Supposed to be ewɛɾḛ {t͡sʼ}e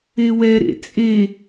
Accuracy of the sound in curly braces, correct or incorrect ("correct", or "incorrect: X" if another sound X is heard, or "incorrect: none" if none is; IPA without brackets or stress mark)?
correct